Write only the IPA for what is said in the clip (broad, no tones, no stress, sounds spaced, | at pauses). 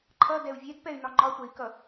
ǃʰ ʌ d ɛ u̯ vʲ ɛ d p ɛ y̯ n ɒ ŋ͡ǃ ɒ tʷ ɛ i̯ k ʌ